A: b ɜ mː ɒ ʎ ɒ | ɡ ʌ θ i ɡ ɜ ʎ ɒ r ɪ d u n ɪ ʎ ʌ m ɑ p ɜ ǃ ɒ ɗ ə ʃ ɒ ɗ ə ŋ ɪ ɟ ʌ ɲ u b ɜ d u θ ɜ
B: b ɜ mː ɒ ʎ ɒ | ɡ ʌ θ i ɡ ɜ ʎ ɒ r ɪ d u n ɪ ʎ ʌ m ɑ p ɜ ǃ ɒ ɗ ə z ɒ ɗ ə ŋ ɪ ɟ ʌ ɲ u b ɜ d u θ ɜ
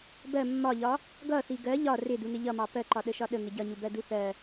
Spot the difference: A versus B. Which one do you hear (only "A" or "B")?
A